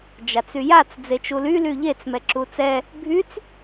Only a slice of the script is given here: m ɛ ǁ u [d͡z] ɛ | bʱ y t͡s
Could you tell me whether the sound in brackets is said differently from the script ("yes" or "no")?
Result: yes